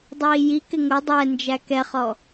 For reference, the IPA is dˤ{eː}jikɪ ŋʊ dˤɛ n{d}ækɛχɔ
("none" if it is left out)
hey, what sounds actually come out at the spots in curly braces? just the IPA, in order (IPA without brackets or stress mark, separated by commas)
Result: iː, d͡ʒ